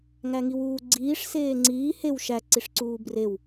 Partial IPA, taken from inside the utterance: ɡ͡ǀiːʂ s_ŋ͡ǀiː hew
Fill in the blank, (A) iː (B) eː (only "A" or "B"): B